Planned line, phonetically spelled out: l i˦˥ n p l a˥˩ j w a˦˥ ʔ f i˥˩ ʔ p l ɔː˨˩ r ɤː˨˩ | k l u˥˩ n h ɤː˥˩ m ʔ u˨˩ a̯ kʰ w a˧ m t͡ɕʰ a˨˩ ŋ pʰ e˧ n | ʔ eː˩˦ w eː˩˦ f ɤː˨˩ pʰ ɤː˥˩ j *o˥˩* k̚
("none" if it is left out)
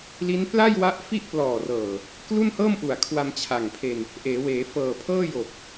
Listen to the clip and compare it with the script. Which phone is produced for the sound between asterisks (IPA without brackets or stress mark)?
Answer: o˨˩